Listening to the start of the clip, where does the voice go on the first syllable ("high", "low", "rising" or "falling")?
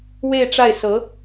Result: falling